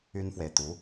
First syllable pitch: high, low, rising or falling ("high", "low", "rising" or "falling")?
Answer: high